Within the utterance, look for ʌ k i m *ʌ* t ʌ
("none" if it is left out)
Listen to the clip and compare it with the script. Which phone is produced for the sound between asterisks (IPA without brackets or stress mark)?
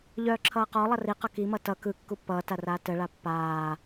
ʌ